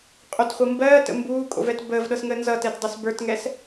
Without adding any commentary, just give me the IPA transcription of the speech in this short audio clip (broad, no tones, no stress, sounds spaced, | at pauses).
qʼ o t χʷ ɤ m b ɜː t ə̰ m b uː kʼ o̰ v ɛ t b əː v ɗ ɤ s ŋ əː n z ʌ t ɛ t dˤ ɤ s b ə˞ t ŋ ɛ s